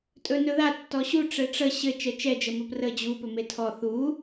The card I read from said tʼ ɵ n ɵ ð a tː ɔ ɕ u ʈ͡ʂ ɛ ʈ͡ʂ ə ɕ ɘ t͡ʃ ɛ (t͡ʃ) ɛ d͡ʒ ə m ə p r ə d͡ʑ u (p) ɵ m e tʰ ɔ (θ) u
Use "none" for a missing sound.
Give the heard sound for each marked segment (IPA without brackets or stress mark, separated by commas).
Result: t͡ʃ, p, θ